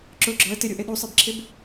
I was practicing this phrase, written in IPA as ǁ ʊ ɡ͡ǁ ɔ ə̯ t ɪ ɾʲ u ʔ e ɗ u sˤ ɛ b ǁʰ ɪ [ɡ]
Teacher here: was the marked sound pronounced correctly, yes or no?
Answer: no